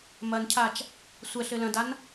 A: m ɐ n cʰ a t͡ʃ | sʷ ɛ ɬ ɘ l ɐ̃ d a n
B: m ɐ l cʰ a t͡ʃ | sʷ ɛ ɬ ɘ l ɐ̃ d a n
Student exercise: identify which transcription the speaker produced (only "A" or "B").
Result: A